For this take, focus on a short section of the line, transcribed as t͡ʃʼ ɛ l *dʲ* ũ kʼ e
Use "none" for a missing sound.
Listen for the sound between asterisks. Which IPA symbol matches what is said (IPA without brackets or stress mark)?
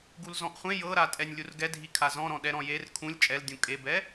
dʲ